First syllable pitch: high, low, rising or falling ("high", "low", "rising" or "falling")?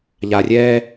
low